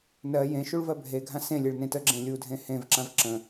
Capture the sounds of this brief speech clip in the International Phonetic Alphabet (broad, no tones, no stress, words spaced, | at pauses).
nɜ jẽ ʃuɭvɜbʱeɡʱã sẽlʲeɭ nẽtəɡ͡ǁẽ lʲudʱẽ hẽvǁãv ǁə̃